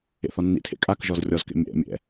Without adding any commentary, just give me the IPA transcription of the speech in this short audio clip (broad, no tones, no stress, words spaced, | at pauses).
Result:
ḛθɔnːḭtʰḛ kʼakʒɔz rʲɔzkḛ mʲɛ̰ mʲɛ̰